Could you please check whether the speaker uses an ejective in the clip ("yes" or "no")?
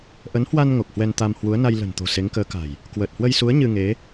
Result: no